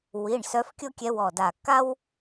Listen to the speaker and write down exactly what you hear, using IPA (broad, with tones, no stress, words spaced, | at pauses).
wi˩˧˩ɳ sœ˧˥fkʲo˥kʲɛ˧˥ wɔ˧˩da˧˩ ka˥w